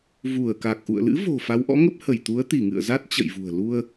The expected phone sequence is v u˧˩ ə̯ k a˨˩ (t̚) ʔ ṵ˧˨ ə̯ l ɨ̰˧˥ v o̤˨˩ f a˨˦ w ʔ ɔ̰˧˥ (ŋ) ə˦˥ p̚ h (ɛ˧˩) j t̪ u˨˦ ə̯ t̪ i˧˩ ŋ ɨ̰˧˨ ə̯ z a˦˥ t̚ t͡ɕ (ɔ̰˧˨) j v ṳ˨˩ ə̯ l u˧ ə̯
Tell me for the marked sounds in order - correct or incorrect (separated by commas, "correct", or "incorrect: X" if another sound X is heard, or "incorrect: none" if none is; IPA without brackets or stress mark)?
incorrect: k̚, correct, incorrect: ə˧˩, incorrect: ə̰˧˨